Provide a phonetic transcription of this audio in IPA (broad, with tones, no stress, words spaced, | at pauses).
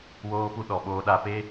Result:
woː˦pu˦ ɗɔ˨ɓoː˦ɗa˦ pe˦